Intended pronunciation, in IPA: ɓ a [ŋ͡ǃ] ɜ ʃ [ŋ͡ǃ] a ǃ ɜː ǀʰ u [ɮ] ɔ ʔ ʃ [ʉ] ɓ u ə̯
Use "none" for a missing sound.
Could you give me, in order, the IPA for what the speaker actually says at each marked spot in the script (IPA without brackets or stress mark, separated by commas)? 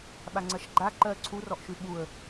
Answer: ŋ͡ǀ, ɡ͡ǃ, r, ʉ